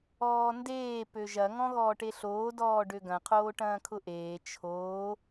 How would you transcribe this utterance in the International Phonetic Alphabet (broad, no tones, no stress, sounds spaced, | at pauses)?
ɔː n d eː p ø ʒ ɐ ŋ ɔ̃ ɣ ɔː ʈ e ɬ oː d ɔː ɖ ø ɡ ɐ̃ qʰ oː ʈ ɐ̃ː kʰ ʊ ʔ eː t͡ʃʰ oː